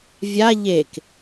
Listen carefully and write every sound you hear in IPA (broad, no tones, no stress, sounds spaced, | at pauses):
vʲ a ʎ e k